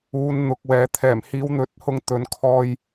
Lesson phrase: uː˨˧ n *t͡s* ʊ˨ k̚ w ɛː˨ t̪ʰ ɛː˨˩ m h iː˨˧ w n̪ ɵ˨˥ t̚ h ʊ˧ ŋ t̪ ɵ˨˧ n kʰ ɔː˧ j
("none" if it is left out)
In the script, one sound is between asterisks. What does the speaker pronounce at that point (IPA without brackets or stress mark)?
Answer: n̪